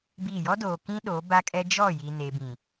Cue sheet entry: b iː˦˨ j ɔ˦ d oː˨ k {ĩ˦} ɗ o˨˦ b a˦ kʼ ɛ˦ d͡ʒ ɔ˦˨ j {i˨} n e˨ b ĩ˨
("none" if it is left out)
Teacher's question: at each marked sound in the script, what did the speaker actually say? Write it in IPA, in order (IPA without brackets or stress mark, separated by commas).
ĩ˦, i˨